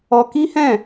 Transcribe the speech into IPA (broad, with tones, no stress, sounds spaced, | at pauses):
ɔ˧ k i˦ h ɛ̃˦˨